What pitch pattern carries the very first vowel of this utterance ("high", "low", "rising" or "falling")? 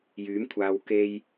rising